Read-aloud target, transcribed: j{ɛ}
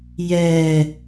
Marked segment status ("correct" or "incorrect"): correct